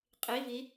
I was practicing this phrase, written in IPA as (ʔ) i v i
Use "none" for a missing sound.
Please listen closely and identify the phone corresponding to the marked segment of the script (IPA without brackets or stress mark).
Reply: qʼ